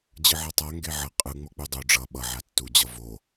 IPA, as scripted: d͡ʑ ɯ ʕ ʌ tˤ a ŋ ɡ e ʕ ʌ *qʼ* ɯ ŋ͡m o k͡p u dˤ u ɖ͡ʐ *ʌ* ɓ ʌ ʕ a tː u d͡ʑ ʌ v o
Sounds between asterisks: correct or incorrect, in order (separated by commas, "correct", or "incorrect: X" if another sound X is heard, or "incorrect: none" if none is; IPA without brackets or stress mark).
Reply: correct, correct